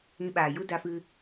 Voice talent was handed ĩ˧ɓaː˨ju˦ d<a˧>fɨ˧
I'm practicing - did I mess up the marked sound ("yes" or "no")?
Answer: no